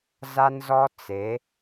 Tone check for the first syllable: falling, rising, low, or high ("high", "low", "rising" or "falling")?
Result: high